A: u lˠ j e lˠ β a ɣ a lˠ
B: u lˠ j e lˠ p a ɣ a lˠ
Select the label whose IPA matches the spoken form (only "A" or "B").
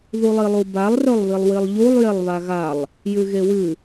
A